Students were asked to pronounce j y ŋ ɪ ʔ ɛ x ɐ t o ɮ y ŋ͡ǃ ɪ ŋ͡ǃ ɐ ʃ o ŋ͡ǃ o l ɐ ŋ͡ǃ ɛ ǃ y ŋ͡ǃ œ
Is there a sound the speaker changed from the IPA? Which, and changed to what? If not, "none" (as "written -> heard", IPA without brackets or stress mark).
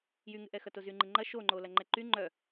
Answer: ɮ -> z